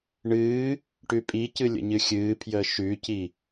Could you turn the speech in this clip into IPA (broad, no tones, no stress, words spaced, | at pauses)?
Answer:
ɳɨː | ʈʉpʼicɨ lʲə̰ɲɨxʲɨːpʰjəː ʃʉci